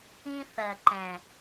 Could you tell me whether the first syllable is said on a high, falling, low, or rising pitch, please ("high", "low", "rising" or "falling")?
high